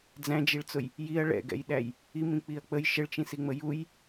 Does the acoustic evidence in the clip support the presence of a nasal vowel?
yes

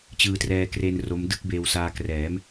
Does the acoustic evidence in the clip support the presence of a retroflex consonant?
no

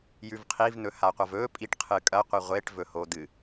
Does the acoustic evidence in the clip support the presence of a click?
no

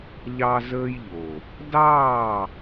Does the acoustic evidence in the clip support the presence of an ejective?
no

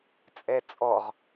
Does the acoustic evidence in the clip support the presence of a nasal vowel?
no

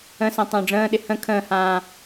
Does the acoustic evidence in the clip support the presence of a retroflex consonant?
yes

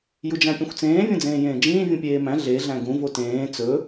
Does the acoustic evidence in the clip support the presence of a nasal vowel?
yes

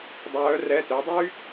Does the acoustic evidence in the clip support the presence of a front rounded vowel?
yes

